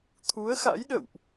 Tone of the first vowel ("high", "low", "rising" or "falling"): rising